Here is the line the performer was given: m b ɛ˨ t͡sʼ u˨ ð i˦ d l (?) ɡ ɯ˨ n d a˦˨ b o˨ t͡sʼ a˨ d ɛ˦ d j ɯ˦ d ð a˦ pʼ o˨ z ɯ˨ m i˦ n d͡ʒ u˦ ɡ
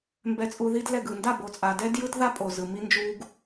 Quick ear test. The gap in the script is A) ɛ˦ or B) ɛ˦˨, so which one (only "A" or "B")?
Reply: B